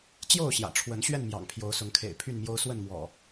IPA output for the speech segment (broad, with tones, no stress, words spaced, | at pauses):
t͡ɕjo˥˨ʊ̯ɕjä̰˨˩ʈ͡ʂʰwə˨˦n ɕɥɛ˥˨nmjɑ̰˨˩ŋ pʰjo˨˦ʊ̯sʊ˨˦ŋkʰḛ˨˩ɪ̯ pʰy˥˨nmjo˦ʊ̯ swə˥˨nmwɔ̰˨˩